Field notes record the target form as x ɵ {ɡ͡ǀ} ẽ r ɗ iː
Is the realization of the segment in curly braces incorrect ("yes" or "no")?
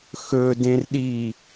yes